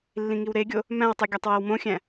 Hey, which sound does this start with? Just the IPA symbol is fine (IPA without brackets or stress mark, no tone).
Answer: lː